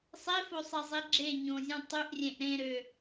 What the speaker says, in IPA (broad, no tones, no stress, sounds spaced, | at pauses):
sˤ e f o sˤ e zˤ e ɡ͡ǁ e ɲ õ zʲ ũ tˤ y ʔ rʲ ẽ ʔ ɾ ẽ ɾ ø